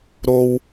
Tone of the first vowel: low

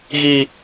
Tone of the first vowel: high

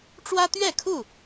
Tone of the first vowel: high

